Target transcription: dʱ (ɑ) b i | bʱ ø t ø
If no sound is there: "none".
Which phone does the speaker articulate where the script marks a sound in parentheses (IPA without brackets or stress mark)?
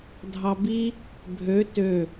ɑ